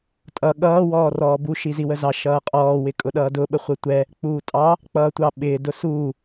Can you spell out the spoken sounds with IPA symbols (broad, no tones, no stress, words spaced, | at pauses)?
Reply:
tʼʌ ɠʌː wɔːrɔːbu ʃiziwəzɑ ʃʌːqʼɔː wɪkʼʊɗʌːdʊ ɓəχʷətʷɛ | k͡puːtʼɑ | k͡pʌːtʷɑɓɪː dʊsuː